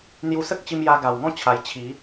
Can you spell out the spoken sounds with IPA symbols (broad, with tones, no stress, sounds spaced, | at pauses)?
n̪ j u˧ s ə˦ k̚ t͡ɕ i˧ m j a˧ ɡ a˨˩ w ŋ ɔ̃˥˧ t͡ɕʰ a˧ j t͡ɕʰ i˨˦